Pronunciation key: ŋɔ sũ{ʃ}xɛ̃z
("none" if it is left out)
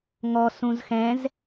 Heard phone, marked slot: z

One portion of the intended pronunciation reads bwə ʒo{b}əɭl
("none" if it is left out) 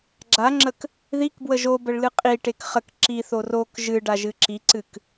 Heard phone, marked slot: b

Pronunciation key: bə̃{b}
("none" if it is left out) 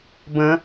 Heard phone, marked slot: none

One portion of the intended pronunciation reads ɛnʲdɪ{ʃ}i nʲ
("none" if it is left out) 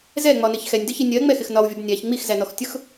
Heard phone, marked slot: ç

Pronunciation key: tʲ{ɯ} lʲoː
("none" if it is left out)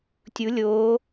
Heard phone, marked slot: u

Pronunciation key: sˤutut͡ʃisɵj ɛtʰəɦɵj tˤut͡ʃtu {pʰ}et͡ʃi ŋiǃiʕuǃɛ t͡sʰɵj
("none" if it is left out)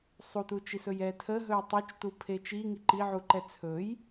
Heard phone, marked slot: pʰ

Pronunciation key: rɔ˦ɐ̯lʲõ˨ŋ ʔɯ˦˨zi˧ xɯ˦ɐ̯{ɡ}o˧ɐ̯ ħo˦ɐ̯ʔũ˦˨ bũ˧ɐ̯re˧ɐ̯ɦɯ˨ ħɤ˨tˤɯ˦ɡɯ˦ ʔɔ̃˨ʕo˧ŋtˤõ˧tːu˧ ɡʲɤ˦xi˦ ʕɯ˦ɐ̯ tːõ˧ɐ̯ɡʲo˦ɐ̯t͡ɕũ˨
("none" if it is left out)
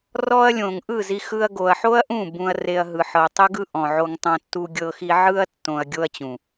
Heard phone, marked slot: ɡ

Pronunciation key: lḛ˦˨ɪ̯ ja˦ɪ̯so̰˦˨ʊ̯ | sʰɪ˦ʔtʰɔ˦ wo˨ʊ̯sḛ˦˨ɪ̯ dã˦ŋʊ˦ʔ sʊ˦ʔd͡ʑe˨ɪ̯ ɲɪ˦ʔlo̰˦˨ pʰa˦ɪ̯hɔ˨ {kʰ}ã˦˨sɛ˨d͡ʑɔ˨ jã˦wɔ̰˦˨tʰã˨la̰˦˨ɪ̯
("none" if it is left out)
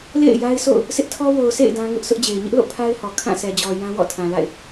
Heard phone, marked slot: kʰ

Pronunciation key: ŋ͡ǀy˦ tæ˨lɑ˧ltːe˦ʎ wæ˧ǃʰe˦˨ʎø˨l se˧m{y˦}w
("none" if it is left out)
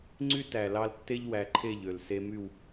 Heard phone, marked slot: y˦˨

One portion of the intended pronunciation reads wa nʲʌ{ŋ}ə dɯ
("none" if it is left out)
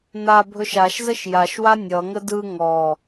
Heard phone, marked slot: ŋ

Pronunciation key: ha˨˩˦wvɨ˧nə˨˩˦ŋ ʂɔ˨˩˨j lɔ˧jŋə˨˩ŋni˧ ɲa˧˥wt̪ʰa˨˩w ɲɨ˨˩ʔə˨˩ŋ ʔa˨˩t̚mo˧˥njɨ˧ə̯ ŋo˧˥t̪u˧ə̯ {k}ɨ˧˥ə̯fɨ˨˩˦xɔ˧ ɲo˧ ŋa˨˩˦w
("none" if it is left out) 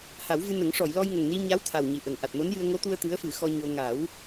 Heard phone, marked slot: t̪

